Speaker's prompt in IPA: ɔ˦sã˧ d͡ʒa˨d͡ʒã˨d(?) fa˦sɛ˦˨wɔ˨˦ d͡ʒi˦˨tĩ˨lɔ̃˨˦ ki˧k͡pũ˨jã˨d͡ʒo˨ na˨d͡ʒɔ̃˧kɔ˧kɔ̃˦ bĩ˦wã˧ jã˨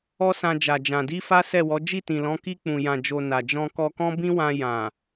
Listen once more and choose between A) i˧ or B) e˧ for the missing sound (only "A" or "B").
A